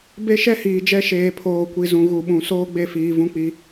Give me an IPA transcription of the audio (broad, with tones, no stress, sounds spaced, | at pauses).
b e˦ ʃ ɛ˦ h iː˨ d͡ʒ ɛ˦ ʃ eː˨ pʰ oː˨ kʷ i˨ z ũ˨ ɣ u˨ ɓ ũ˨ s oː˦ ɡ͡b e˦˨ f iː˨ v ũ˦ k͡p i˦